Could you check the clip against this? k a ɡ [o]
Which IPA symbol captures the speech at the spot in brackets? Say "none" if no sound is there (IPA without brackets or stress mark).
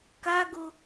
o